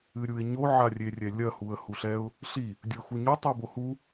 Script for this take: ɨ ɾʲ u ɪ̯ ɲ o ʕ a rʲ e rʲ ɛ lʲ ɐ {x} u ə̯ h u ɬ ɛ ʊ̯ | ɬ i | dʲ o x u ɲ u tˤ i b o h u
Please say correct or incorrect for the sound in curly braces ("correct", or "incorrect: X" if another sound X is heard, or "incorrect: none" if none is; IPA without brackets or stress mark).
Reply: incorrect: h